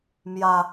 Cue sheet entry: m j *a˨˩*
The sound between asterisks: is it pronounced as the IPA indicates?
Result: no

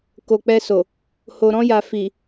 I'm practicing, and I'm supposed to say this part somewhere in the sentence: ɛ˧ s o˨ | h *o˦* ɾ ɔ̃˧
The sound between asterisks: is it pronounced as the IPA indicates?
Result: no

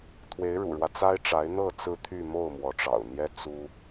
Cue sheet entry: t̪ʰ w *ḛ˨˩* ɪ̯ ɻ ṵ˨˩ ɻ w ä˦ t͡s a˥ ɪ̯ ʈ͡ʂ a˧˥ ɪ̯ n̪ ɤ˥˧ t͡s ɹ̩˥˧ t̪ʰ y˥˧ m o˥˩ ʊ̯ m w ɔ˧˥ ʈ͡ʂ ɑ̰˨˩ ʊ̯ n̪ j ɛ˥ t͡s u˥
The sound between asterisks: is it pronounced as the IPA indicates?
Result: no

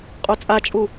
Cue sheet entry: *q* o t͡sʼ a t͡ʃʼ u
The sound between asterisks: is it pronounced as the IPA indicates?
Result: no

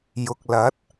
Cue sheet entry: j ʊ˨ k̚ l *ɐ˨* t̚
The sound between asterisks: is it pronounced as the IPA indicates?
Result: no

